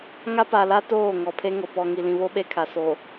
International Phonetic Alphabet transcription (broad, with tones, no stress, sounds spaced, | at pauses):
ŋ a˦ p a˨ l a˦ t oː˦˨ ŋ ɔ˨ pʰ e˦ ŋ o˨ p ɔ˨ ŋ i˨ l ĩ˨ β o˦ ɓ e˦ kʰ a˨ s o˨